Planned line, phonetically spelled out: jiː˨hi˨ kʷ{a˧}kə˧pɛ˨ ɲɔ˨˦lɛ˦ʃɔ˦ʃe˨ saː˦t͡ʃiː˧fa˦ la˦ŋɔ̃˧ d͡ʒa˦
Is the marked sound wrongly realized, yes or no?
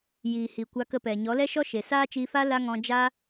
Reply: no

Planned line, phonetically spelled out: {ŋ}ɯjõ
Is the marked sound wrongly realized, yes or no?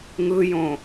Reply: no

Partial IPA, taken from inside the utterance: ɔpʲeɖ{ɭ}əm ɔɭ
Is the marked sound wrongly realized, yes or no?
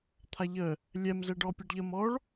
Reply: yes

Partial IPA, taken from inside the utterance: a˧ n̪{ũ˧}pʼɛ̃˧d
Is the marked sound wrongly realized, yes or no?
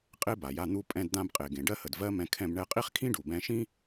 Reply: yes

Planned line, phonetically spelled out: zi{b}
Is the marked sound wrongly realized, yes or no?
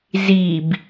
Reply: no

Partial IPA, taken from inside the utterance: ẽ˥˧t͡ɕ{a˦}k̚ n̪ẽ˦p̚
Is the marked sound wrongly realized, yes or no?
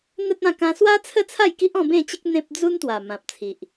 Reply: yes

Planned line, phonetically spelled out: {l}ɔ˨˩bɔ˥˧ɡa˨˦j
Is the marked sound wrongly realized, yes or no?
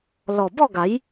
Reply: no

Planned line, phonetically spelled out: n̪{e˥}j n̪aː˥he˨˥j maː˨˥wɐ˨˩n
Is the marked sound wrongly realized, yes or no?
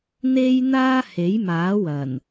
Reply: no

